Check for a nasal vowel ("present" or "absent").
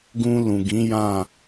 present